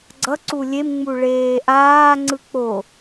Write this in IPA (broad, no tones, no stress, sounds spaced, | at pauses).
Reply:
ɡ͡ǀ ʌ ǀ u lʲ e m ŋ͡m u ɭ eː ʔ aː ŋ͡ǀ ɯ k͡p o